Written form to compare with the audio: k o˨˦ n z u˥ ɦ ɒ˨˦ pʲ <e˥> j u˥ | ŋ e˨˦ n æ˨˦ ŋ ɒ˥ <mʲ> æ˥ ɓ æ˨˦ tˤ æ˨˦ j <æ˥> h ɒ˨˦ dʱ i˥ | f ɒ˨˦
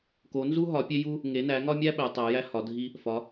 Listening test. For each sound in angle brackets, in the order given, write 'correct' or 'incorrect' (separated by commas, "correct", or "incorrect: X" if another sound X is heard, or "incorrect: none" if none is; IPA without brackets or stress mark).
correct, correct, correct